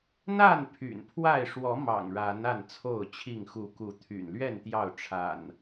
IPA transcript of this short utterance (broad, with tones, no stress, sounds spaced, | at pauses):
n̪ a˥˨ n pʰ y̰˨˩ n pʰ w a˥˨ ɪ̯ ʂ w ɔ˨˦ m ɑ̰˨˩ ŋ ɻ a˨˦ n a˥˨ n t͡sʰ o˥˨ ʊ̯ t͡ɕʰ i˥˨ ŋ x u˨˦ k u˨˦ t̪ʰ y̰˨˩ n l ɥ ɛ˥˨ n t̪ j ɑ˥˨ ʊ̯ ʈ͡ʂʰ a̰˨˩ n